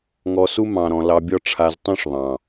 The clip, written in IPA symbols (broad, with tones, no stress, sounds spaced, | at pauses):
ŋ ɔ˧ s u˦ m ɑ̃˨ ɾ ɔ̃˨ l ɑ˧ bʲ ɒ˦ ʈ͡ʂʰ a˧ z tˤ ũ˦ ʂ ðˤ ɑ̃˨